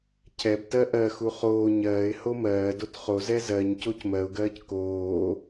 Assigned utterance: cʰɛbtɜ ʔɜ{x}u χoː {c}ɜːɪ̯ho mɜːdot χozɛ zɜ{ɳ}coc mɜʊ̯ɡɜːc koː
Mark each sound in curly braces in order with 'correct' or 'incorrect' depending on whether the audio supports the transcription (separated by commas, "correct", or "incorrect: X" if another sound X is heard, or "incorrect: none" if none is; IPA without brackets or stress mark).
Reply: correct, incorrect: ɲ, incorrect: ɲ